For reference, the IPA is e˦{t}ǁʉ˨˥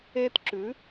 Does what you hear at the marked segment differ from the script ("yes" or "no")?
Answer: no